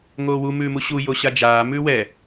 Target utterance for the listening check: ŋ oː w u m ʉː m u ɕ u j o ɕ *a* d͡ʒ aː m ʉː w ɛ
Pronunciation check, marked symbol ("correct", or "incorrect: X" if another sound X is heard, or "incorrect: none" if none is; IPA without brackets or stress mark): correct